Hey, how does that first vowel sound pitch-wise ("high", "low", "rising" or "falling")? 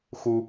high